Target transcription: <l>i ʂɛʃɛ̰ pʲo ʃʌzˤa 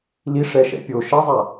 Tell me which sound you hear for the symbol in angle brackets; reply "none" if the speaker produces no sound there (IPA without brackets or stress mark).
l